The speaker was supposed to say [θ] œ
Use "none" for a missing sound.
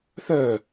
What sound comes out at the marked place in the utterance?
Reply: θ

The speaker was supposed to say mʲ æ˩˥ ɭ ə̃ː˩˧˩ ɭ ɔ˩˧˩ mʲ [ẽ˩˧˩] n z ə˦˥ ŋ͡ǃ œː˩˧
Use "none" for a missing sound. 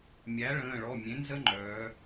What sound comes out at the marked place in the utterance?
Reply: ẽ˩˥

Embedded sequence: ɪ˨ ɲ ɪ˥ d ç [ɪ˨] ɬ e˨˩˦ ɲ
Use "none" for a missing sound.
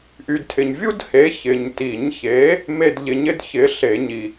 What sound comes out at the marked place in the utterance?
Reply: ɪ˨˥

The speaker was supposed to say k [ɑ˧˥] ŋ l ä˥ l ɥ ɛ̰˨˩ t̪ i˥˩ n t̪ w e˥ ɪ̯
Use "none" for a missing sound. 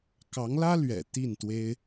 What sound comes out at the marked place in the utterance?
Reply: ɑ˧˥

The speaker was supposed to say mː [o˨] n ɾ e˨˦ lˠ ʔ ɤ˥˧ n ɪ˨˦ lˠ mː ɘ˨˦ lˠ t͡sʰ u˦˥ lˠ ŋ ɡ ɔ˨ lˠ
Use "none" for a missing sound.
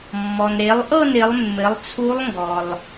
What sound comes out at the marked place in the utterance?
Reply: ɔ˨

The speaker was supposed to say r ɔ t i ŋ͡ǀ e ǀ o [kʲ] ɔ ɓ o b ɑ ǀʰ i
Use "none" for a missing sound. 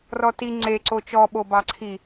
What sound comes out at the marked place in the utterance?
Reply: t͡ʃ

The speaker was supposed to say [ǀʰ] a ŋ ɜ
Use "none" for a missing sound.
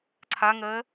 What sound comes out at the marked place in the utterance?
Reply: ǀʰ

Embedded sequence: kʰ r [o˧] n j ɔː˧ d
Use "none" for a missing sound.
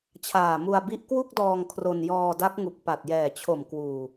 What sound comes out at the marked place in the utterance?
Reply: o˧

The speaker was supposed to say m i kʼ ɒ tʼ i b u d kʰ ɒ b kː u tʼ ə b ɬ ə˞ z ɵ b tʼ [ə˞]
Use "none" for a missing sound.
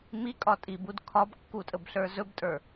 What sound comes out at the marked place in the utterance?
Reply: ə˞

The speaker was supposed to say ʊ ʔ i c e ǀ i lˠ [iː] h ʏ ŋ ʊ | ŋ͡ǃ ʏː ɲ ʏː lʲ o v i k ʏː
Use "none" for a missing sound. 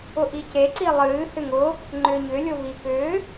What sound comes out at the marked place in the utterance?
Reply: ɨː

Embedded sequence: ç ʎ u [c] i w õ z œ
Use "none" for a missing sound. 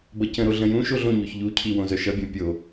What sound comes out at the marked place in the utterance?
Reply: cʰ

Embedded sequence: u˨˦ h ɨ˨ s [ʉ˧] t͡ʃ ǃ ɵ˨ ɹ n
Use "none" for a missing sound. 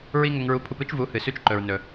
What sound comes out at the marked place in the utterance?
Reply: ʉ˧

